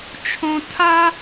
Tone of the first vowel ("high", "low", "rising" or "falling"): high